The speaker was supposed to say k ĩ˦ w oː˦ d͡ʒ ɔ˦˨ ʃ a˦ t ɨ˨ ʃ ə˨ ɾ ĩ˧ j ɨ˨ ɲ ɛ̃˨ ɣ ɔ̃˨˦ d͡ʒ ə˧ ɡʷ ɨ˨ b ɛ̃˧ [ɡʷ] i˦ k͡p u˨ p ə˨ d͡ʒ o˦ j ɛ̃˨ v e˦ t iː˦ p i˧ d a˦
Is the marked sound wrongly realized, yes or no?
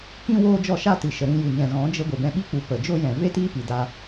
yes